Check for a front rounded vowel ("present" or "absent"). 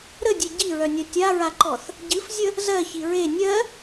present